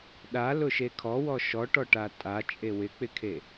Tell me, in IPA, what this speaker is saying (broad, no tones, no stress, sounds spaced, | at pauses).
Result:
ɗ a l ʊ ʃ e kʰ ɔ w ɔ ʃ ɔ ʈ ɔ ʈ a tʼ a t͡ʃʼ e w ɪ k͡p ɪ kʰ e